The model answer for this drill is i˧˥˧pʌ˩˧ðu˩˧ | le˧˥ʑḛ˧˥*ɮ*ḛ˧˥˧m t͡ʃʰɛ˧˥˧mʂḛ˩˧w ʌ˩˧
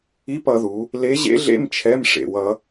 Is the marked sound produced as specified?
yes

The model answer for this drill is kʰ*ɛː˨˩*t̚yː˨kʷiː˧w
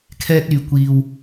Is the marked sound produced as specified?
no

